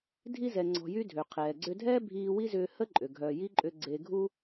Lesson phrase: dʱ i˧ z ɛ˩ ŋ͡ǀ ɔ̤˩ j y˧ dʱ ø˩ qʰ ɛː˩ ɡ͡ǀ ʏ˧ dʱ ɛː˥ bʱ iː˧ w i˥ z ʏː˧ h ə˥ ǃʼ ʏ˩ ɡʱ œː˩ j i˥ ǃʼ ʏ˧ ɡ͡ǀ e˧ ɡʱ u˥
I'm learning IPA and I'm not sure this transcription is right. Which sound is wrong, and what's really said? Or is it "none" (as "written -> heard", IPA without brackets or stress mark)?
none